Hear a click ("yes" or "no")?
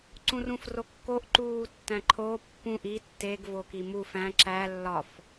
yes